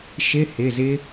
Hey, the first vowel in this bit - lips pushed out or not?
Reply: no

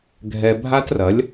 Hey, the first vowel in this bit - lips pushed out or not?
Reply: no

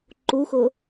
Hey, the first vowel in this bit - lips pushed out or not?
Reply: yes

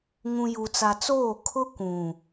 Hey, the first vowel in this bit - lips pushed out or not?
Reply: yes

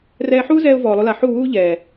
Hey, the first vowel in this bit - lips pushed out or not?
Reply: no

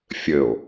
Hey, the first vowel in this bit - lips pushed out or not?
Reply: no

